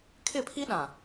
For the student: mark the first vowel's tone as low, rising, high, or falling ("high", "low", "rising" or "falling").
falling